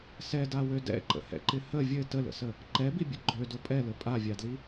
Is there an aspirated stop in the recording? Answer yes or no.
no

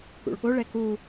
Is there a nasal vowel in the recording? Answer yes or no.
no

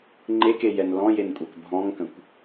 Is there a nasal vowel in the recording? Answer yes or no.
yes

